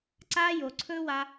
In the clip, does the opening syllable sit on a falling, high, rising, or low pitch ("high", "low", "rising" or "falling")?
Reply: high